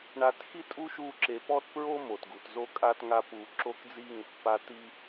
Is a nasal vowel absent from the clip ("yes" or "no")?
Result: yes